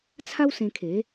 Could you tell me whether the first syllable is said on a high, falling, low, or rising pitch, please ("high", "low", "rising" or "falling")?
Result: high